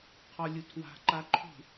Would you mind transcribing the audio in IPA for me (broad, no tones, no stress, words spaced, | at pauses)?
qʰɔlʲutʰwa̤ ǃaǃʰṳ